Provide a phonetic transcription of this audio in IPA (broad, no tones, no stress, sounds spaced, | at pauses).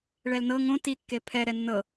ɭ ɛ l n ɤ ŋ õ t i kː e pʰ ɛ ɾ ɛ nː ɤ